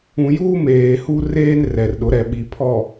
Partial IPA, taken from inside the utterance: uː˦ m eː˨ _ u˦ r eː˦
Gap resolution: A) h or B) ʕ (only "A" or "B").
A